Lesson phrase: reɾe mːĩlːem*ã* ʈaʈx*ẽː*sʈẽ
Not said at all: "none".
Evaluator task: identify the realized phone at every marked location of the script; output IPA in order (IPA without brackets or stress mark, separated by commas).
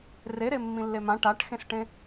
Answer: ã, ẽ